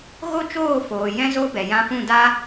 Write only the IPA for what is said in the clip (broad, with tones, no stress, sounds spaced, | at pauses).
ɣ o˦ t͡ʃ oː˦˨ f oː˨ j ɛ̃˦ z o˦ b ɛ˨ j ã˧ f ũ˦˨ d a˦